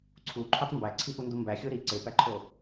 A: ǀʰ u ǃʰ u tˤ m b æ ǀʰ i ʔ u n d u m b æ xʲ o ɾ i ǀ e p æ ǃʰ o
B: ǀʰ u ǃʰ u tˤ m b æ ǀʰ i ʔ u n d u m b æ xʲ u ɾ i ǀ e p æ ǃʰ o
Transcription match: A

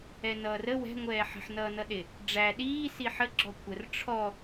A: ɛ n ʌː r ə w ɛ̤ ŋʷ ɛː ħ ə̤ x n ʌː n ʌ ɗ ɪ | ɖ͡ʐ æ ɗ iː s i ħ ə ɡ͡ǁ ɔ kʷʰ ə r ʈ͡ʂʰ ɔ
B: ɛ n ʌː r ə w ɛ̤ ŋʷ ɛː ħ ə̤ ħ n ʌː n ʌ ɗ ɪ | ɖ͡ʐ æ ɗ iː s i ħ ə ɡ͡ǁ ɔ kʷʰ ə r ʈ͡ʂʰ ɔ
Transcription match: B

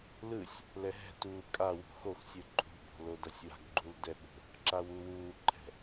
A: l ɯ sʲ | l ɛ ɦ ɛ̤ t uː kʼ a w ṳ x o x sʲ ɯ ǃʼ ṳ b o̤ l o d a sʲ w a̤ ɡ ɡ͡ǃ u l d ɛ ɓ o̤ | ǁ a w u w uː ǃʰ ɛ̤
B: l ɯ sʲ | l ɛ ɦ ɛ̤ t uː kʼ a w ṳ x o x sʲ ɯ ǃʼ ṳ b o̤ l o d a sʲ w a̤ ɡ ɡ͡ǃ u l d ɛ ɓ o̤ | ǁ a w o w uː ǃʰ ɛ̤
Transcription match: A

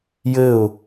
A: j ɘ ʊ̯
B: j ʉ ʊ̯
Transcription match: A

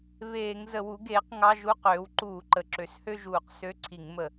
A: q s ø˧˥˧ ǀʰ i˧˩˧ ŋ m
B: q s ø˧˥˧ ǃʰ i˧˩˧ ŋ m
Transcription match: A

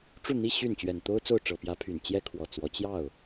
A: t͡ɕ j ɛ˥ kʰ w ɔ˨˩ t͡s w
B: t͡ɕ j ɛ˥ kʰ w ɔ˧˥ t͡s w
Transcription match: A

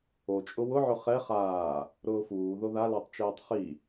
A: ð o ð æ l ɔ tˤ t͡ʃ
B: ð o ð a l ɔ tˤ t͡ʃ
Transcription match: B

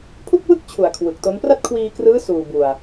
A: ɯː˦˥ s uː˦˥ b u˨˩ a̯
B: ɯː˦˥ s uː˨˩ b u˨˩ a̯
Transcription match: B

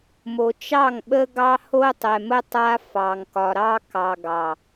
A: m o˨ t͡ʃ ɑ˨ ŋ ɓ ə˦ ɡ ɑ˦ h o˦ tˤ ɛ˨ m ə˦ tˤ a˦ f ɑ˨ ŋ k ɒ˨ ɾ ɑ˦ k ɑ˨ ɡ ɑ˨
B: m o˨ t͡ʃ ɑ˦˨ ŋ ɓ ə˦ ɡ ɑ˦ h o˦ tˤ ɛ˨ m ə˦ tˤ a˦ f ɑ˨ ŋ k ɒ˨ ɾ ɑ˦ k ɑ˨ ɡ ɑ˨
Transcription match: B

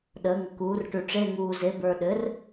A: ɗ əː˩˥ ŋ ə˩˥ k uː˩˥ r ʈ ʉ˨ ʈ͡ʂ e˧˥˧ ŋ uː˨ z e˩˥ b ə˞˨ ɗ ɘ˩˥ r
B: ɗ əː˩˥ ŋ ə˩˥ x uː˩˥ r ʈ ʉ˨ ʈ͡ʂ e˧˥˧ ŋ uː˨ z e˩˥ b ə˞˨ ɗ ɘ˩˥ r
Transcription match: A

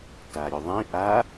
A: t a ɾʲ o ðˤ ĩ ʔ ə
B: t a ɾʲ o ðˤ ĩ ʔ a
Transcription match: B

